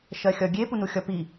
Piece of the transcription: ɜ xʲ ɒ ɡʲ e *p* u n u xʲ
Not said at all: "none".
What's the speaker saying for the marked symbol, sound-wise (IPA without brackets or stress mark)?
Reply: p